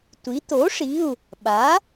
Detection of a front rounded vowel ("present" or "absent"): absent